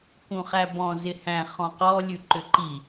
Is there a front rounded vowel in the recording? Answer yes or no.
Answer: yes